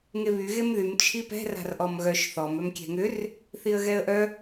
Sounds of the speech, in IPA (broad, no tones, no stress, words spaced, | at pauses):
ŋeβy ɣemðym t͡ʃʰipɛ̤ ra̤rʔɔmɣœʃ θɔm œmkʲɛ̤ŋʏr | θiə̯ɣɛə̯ʔœ